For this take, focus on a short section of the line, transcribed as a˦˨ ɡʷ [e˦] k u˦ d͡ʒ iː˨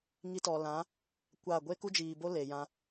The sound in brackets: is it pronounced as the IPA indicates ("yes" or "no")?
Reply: yes